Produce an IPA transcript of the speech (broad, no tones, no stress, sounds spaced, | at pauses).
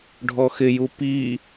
ɖʱ ɔ x ɪ j u p i